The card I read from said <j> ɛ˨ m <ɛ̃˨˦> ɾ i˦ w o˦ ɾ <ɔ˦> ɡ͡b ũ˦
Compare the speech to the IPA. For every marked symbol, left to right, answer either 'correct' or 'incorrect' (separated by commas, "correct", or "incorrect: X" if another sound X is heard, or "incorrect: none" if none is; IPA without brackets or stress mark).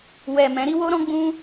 incorrect: w, correct, incorrect: ɔ̃˦